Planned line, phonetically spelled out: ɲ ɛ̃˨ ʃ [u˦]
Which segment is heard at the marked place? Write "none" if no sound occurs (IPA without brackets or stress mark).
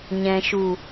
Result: u˨